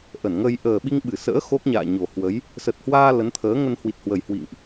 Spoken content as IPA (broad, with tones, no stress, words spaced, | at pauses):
ʔə˧˩nŋə˧j ʔəː˨˩ɓi˧ŋ ɓɨ˧˩sə̰ː˧˥ xo˦˥k̚ɲa̰ː˧˨ɲo˨˩ hwə˨˦j | sə˨˩t̚hwaː˧ lə˨˦nt̪ʰəː˨˦ŋə˧n hwi˨˩t̚hwə˨˩j hwḭ˧˨ŋʔ